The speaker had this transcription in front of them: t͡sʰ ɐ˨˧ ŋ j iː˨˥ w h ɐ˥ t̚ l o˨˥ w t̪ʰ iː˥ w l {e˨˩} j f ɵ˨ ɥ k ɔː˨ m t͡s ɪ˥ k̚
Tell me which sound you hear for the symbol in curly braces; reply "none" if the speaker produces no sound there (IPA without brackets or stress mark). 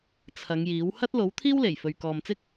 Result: e˨˩